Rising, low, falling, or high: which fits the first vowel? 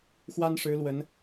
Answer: high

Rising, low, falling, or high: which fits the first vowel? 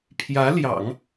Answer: rising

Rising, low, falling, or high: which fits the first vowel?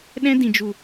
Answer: high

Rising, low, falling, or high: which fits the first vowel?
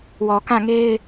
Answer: low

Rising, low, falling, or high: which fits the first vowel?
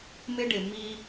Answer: high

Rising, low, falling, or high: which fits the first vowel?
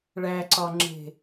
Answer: low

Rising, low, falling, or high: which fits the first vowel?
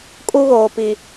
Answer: high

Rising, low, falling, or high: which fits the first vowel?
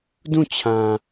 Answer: falling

